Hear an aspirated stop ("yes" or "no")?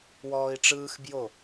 no